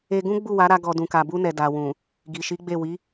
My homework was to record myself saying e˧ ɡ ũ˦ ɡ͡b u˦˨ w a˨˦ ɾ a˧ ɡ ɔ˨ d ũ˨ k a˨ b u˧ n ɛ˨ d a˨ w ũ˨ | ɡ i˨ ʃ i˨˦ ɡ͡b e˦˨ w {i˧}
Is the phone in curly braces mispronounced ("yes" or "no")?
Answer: yes